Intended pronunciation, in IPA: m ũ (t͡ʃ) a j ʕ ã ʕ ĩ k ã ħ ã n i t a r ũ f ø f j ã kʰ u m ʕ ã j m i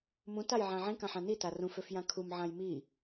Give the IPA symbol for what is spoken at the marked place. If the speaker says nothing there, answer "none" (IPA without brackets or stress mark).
t